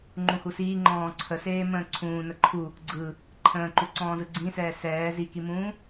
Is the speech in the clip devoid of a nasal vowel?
no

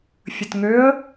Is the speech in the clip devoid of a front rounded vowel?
no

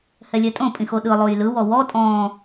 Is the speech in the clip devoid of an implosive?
no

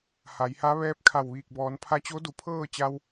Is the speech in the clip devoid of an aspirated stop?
no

